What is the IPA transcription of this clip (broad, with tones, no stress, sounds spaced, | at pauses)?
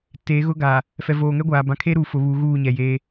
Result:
t e˨˦ ɣ ʊ˦ ɡ a˨ | f ɛ˨ v oː˨ ŋ ɛ˦ ɡʷ aː˨ b ã˨ kʰ e˦ ɾ uː˨ f ʊ˨ β u˨˦ ɣ uː˦˨ ɲ ɛ˨ j e˦